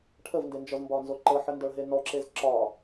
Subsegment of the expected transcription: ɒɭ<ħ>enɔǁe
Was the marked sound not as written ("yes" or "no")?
yes